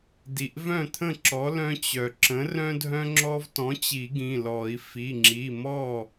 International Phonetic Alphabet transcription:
d i˩ ʔ v œ̃˥˩ t̪ʰ ə̃˥˩ ǁ ɔ˩˥ l œ̃˦ t͡ɕ œ˩ ǁ ə̃˩˥ r œ̃˦ dʱ œ̃˦ ŋ͡ǁ ɔ˦ v t ɔ̃˩˥ t͡ɕ i˨˩˦ ɡ ĩ˩˧˩ l ɔ˨˩˦ i̯ f i˩˧˩ ŋ͡ǁ i˩˧˩ m ɔ˥˩

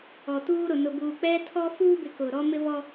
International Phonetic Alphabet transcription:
ɔ˨ t uː˦ ɾ ʊ˨ n ʊ˨ b uː˨ k͡p ɛ˦ tʰ ɔ˦ f uː˦ b ɪ˨ k ʊ˨ ɾ ɔ˦ m ɪ˦ v ɔ˦

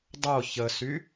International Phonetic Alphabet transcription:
dˤ o ç ə s y

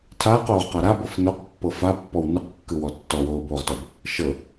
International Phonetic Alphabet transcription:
tʰ aː q oː ʁ q a ɾ a b ɤ f n o q pː ɤ f a pː ɔ w n ɯ q kː ɯ w ɔ tː ɔ w oː b oː ʁ t ɔ b | ʃ ɤ

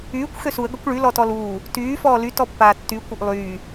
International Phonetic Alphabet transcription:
yː kʷ x ø s u ə̯ ɡ ɐ kʷ ɭ y l ɔ t ɔ l uː | t yː f ɔː l y t ɔ pː aː tː y kʷ ɐ ʔ lˠ yː

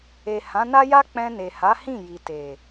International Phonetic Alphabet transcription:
e˨ h ã˨˦ n a˦ j a˦ k͡p ɛ̃˧ n e˨ h a˨˦ h ĩ˦˨ j i˨ t e˨

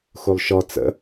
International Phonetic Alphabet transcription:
x u lˠ ʃ ɔ t͡s ə̰

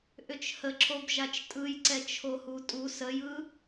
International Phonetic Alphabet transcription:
ʔ ʏ t͡ʃ h ə ǁʰ o b ʒ a t͡ʃ tʼ ɯ j ǀ ɛ t͡ʃʰ o h u tʼ u s ə j ɯ

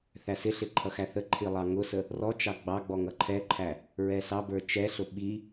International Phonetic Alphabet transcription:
θ æ s ɪ ɬ ɪ ǃʰ ʌ x æ θ ə ǃʰ i lˠ ɑ ŋ ʊ s ə | r ɔ t͡ʃ ɑ ɡ͡b ɑ ɡ͡b ɔ ŋ ʌ ǃʰ ɛ ǃʰ æ | ɹ ɛ s ɑ b ə˞ t͡ʃ ɛ ɬ ʊ ɓ i

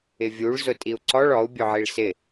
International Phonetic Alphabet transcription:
ɪ vʲ u ɭ z ʊ tʼ i u̯ ǀ ɔ ɭ ɔ u̯ bʲ ʊ ʕ i ɭ s ɪ

